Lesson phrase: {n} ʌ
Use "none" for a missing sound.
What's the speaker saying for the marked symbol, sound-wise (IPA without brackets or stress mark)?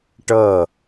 ʈ